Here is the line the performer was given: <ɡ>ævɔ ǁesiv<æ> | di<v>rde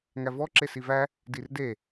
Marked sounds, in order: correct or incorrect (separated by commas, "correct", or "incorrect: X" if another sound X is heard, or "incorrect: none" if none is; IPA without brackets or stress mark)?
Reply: incorrect: ŋ, correct, incorrect: none